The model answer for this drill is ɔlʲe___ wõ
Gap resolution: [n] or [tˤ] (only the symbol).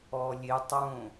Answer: tˤ